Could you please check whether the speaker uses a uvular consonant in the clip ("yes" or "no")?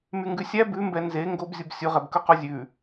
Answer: yes